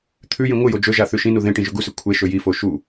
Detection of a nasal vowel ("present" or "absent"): present